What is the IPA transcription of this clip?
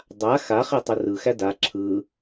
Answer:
dˤ a x a χ e tˤ ə r ɯ x æ d a ǁʰ ɯ

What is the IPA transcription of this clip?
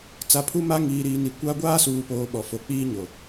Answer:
t͡s a˨ pʰ u˦ m a˦ ŋ iː˨ ɾ iː˨ n i˨ kʷ a˦ ɡʷ aː˦ s uː˨ p oː˨ ɓ ɔ˨ f o˨ k͡p iː˦ ɲ o˨

